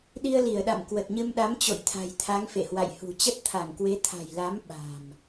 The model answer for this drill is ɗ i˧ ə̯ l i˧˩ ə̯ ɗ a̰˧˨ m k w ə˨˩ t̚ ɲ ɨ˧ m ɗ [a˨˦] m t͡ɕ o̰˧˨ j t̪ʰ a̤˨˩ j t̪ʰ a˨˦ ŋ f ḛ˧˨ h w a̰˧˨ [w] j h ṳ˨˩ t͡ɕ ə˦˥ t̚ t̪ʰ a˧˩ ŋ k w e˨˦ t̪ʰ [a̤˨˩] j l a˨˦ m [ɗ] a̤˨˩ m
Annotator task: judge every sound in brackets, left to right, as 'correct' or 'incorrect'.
correct, incorrect, correct, incorrect

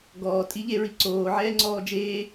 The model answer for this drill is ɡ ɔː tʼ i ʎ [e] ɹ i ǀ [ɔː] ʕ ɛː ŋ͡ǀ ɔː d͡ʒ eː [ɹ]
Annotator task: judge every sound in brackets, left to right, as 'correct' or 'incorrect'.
correct, incorrect, incorrect

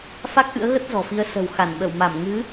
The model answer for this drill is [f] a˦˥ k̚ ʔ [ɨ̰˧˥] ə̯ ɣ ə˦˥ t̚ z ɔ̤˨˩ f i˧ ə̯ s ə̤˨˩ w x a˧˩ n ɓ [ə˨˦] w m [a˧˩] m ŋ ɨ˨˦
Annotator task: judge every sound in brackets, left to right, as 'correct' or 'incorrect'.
correct, correct, incorrect, correct

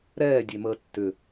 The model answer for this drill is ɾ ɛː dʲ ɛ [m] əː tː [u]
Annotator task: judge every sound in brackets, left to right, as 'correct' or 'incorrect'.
correct, incorrect

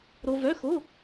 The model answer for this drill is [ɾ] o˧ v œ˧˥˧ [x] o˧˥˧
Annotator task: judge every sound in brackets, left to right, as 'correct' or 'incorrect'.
correct, correct

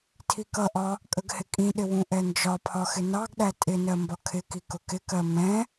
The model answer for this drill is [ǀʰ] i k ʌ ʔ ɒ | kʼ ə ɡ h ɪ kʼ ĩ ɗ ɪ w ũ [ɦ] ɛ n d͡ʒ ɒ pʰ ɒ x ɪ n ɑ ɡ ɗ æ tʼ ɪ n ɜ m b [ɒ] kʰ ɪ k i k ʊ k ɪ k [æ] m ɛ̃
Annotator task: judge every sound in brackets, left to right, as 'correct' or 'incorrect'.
incorrect, incorrect, correct, incorrect

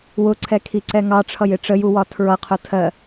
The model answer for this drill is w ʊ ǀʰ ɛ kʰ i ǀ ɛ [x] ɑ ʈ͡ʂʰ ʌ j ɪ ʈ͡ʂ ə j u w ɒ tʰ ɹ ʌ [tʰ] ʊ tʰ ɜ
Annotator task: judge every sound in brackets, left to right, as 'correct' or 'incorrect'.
incorrect, incorrect

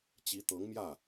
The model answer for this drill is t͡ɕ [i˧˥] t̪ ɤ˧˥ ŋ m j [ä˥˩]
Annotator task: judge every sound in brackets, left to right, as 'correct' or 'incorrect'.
correct, correct

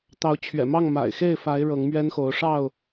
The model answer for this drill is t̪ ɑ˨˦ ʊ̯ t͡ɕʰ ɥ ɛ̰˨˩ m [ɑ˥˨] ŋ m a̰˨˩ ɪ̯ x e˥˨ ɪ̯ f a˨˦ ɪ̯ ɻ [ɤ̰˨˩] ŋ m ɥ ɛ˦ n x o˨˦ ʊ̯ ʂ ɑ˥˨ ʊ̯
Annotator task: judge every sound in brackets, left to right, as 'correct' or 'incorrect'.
correct, incorrect

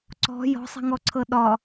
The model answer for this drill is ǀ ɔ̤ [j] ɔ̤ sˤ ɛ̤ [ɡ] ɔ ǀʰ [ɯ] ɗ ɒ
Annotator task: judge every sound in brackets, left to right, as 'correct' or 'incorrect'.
correct, incorrect, incorrect

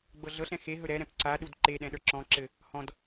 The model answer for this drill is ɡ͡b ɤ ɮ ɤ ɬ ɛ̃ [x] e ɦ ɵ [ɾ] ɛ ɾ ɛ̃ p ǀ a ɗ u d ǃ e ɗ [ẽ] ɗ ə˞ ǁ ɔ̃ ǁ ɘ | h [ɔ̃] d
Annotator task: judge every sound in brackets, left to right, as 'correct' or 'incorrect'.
correct, correct, incorrect, correct

